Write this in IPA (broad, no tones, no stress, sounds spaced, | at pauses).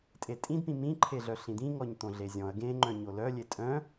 tʼ e tʼ ĩ d p ĩ m ĩ ǃʰ e ɮ œ ɬ ĩ d̪ ĩ ŋ ɔ ɲ t̪ õ ɮ e zʲ ɔ̃ ɐ̯ ɡ ẽ ŋ͡ǃ œ̃ ɲ o l œ lʲ e tʼ œ̃